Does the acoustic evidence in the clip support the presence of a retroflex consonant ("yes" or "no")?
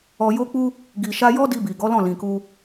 no